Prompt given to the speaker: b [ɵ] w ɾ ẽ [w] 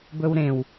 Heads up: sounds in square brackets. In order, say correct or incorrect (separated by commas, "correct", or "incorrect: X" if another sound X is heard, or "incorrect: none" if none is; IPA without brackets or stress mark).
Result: correct, correct